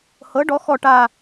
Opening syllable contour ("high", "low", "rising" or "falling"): rising